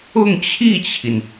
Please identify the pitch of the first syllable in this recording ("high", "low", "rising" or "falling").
falling